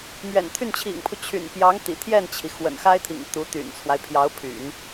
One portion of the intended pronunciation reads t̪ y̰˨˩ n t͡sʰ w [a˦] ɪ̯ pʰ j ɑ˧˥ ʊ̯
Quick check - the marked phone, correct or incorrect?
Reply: correct